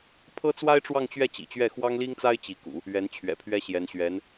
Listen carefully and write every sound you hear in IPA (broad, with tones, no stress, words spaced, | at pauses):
pʰɤ˥t͡swa˥ɪ̯ʈ͡ʂwɑ˥˧ŋt͡ɕɥɛ˥˩ t͡ɕḭ˨˩t͡ɕɥɛ˥˩ xwɑ˥ŋli˥ŋt͡sa˥ɪ̯ t͡ɕi˧˥kṵ˨˩˦ | ɥɛ˧˥nt͡ɕʰɥɛ̰˨˩pʰɥɛ˥ɕjɛ˧˥n ɕɥɛ˧˥n